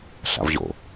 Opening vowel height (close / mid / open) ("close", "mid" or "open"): open